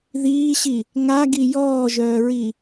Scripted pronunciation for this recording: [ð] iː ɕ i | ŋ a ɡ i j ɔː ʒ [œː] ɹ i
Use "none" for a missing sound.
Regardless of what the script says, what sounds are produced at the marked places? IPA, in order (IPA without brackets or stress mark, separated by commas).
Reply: ð, œː